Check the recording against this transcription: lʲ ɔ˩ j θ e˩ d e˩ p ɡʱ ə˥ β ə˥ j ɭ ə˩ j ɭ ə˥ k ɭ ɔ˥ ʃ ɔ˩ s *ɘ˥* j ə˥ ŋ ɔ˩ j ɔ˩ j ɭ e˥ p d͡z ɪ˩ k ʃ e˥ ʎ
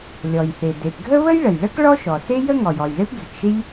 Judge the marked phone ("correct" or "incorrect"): incorrect